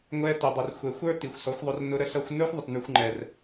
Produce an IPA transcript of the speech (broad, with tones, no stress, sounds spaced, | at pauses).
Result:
ŋʷ ɛ˧ t ʊ˨ dˤ ə˨ r xʷ ɛ˨ xʷ ə˞˦ t i˨ xʷ s ɔ˨˦ xʷ ðˤ ʊ˧ r n ʊ˧ ɾ ə˧ ɬ ʌ˧ xʷ n ə˞˦ xʷ ðˤ ə˨ t n ə˞˧ xʷ ŋ͡ǃ ɛ˨ r